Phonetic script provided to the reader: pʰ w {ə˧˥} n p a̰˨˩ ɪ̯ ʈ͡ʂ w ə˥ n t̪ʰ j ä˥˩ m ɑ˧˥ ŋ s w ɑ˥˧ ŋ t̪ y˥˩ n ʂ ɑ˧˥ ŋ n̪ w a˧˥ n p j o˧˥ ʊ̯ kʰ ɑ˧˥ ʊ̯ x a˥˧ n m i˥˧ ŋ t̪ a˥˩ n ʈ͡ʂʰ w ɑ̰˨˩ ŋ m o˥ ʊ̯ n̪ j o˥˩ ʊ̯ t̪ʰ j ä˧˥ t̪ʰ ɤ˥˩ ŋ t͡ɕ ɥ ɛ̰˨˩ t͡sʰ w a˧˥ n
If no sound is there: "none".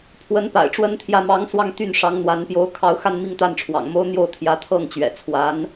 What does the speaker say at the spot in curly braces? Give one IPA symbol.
ə˧˥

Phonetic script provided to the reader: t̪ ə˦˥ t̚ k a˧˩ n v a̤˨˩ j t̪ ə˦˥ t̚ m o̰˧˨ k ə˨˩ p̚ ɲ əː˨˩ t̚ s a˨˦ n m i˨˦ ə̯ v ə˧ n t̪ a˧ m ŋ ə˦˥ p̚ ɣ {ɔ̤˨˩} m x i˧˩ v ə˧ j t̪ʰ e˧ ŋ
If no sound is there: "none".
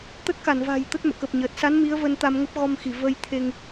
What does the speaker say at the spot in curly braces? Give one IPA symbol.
ɔ˧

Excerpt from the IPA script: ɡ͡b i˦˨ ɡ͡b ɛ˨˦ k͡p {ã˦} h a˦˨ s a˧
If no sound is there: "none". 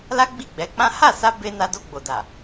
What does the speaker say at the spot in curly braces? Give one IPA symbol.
ã˦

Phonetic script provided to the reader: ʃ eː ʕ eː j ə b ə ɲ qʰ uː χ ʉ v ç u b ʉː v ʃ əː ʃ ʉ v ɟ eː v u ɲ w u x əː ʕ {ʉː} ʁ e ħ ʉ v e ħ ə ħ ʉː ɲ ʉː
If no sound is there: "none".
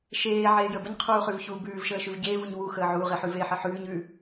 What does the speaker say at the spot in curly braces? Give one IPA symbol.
uː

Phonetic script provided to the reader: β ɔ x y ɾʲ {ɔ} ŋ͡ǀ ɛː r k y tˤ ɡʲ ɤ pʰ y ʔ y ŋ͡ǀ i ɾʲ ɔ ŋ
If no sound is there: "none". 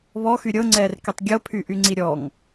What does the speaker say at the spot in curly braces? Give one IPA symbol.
ɤ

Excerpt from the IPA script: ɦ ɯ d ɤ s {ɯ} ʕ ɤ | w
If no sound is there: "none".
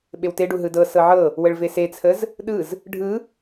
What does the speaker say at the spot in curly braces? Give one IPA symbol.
ɤ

